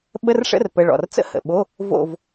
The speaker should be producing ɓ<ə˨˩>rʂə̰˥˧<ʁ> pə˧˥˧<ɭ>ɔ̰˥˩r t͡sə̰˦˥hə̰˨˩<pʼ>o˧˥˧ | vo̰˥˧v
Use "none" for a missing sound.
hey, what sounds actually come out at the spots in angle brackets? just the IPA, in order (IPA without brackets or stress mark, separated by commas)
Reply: ə˧˥˧, r, ɭ, ɓ